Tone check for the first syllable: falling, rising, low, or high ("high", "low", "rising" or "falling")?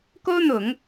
high